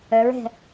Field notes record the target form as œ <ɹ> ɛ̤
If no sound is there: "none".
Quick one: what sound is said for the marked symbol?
ɹ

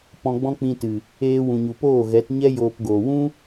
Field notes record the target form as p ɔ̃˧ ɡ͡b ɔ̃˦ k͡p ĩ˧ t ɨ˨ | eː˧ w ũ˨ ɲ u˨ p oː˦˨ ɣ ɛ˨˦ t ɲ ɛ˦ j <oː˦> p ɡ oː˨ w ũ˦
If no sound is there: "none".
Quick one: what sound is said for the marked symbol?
oː˧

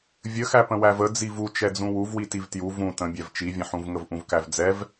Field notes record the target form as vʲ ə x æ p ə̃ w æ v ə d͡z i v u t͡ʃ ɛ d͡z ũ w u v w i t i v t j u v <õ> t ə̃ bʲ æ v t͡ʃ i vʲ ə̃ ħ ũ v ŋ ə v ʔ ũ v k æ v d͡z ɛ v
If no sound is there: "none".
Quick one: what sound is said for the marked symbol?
ũ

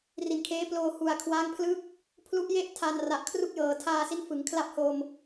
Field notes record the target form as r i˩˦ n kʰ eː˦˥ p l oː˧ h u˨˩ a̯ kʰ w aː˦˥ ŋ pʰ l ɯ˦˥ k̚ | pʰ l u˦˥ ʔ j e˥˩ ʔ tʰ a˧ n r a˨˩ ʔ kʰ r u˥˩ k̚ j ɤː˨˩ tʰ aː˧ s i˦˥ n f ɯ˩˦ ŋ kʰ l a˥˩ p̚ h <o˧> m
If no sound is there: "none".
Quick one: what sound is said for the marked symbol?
o˧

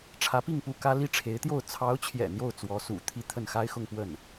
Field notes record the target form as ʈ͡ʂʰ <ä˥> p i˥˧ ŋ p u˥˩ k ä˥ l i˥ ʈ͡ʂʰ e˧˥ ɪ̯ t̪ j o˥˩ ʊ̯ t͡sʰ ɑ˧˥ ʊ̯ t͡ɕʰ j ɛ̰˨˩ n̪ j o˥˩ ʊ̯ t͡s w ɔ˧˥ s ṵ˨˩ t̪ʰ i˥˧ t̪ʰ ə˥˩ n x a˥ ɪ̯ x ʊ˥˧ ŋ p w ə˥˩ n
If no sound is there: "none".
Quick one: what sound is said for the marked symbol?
ä˧˥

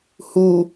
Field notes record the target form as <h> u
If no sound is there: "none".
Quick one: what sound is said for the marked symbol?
h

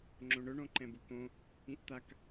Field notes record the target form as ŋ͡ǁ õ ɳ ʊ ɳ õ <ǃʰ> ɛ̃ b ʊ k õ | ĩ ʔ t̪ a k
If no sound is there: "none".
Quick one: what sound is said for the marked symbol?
ǃ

